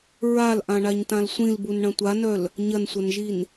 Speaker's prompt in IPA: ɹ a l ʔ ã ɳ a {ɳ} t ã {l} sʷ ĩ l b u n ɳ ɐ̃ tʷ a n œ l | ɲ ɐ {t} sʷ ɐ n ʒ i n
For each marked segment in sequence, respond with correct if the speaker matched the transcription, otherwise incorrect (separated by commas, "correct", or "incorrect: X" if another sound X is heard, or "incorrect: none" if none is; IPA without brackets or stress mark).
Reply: incorrect: ɲ, correct, incorrect: n